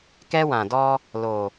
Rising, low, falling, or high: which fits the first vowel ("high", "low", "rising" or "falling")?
high